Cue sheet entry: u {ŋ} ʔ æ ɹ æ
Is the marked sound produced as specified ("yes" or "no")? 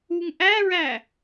yes